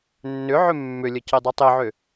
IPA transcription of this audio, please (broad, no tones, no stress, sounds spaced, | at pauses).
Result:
nː ʏ ʕ ʏ mː ʏ lʲ ə c i dˤ i tˤ i ʕ ʏ